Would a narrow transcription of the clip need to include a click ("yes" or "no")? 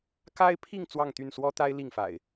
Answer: no